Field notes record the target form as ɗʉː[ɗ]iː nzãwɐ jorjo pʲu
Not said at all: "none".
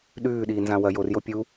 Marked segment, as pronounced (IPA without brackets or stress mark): ɗ